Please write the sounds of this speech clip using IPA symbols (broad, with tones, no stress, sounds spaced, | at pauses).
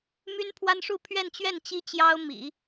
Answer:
m y˥ n pʰ w a˥ n ʂ u˥˧ pʰ ɥ ɛ˥˧ n t͡ɕ ɥ ɛ˥˩ n t͡ɕ i˥ t͡ɕ j ɑ˥ ʊ̯ m ḭ˨˩˦